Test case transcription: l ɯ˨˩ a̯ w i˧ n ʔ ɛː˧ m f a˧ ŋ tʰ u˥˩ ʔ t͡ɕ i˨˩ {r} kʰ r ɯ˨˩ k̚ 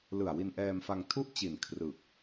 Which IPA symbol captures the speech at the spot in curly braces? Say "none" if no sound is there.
n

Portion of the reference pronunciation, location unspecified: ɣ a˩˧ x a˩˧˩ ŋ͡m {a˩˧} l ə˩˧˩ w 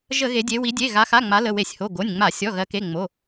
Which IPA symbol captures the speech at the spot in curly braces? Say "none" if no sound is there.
a˩˧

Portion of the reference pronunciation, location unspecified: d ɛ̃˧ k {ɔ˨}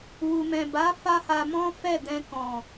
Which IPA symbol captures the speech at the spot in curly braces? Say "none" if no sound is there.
ɔ̃˨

